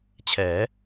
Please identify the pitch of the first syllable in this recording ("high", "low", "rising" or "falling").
rising